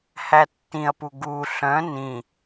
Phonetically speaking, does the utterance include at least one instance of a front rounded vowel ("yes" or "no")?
yes